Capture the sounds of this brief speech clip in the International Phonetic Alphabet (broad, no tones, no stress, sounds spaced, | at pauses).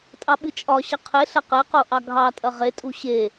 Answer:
tʼ ɑ ɓ ɨ t͡ʃʼ ɒ ɕ ɐ qʰ e ɬ ɐ q e q o ʔ ɑ ɡʱ ɑ tʼ ɐ ʁ e tʼ u ɕ e